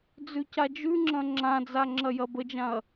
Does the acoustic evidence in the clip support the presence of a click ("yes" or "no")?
yes